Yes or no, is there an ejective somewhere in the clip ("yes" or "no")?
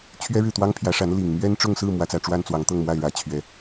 no